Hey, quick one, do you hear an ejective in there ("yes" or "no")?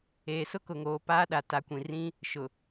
no